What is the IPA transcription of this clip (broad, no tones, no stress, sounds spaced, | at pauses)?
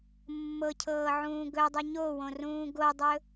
mː ɤ cʰ ɤː ʕ ũː ɡ ɵ dˤ u ɲ o w õ r ũː ɡ o dˤ ɵ